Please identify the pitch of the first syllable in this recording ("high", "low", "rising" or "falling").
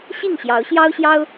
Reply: falling